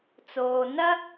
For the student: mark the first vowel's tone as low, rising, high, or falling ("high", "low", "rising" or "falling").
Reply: low